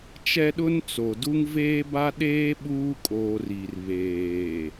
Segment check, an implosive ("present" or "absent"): present